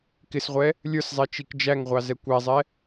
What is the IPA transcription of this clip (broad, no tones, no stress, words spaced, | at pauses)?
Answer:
kɪsʁʷɛ | lʲə˞szˤɛ t͡ʃikd͡ʒæŋʁʷɑ zɛkʷæzˤɛ